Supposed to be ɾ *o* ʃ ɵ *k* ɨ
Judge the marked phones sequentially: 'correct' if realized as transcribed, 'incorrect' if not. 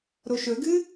correct, incorrect: ɡ

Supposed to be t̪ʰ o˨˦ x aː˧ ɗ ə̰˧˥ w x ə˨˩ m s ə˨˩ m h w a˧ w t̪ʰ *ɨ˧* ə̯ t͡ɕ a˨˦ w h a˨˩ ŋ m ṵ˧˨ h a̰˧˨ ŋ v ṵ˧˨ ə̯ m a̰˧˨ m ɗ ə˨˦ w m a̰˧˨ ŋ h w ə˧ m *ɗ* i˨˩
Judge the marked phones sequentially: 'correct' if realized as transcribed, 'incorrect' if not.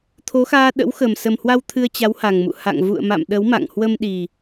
correct, correct

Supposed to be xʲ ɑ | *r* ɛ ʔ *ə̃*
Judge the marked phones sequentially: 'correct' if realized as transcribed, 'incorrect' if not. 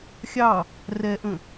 correct, correct

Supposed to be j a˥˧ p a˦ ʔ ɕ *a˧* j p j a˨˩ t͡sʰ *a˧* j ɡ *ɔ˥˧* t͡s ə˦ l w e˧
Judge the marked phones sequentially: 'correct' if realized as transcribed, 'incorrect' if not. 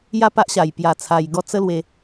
incorrect: a˨˩, correct, correct

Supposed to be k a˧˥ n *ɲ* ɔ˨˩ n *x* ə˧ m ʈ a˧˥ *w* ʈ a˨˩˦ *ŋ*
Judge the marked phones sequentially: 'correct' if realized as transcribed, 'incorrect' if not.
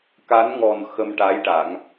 incorrect: ŋ, correct, incorrect: j, correct

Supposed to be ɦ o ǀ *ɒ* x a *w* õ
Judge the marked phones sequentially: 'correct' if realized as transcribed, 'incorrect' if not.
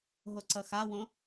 incorrect: ʌ, correct

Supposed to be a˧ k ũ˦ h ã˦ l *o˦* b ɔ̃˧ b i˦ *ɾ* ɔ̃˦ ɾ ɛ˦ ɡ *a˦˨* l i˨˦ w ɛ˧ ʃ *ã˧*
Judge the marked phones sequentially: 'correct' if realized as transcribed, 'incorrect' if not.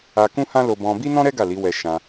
incorrect: o˧, incorrect: n, correct, correct

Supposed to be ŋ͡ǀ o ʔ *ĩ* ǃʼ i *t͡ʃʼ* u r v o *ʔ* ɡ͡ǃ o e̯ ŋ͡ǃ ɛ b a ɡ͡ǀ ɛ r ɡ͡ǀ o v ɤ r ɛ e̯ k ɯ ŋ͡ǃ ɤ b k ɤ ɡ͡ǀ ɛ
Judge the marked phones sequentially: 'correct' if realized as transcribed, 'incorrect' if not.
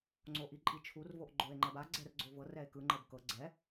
incorrect: i, incorrect: t͡ʃʰ, correct

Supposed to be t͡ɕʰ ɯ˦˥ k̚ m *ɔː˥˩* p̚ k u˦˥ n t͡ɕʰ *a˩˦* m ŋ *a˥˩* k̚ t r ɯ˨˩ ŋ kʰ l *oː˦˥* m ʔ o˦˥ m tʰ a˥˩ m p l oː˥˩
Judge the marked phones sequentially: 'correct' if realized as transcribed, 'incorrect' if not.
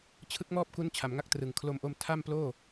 correct, correct, correct, incorrect: o˦˥

